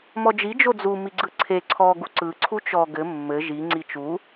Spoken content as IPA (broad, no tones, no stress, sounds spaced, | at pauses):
m ɔ d͡ʒ i d͡ʒ o d͡z u m i ɡ͡ǀ ɯ ǀʰ e ǀʰ ɔ ɡ u ǀ ɯ ǀʰ u t͡ʃ ɔ ɡ ɘ mː ɘ ʒ i ŋ͡ǀ i t͡ʃ u